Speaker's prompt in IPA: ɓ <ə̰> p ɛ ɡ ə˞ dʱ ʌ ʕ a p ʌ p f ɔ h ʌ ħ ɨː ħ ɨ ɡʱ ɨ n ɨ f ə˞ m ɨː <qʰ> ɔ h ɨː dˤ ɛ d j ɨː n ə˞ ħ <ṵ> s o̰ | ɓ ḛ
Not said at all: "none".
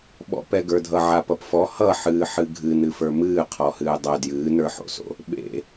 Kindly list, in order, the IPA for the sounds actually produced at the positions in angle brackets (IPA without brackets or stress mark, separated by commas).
ɔ̰, qʰ, o̰